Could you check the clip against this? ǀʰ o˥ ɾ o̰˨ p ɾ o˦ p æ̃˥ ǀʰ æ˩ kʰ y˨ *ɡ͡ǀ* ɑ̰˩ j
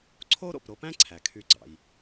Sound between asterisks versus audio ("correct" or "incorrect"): correct